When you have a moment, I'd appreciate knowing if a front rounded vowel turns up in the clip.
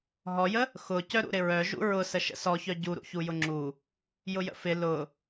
yes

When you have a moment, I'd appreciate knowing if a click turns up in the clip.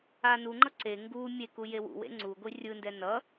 yes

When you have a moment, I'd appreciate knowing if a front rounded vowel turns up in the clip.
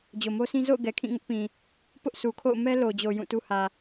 no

